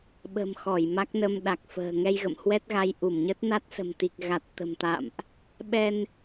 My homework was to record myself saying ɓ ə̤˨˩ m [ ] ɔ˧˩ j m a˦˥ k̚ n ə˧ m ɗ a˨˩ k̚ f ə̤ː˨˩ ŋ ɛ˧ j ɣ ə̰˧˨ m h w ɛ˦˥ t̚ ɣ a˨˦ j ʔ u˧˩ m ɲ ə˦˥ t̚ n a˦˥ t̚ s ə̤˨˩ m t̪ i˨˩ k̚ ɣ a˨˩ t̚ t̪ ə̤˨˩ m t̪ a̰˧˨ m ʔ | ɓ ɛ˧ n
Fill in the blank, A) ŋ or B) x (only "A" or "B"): B